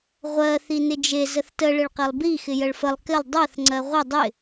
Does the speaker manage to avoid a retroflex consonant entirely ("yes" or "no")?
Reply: no